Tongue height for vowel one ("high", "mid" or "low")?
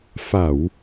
low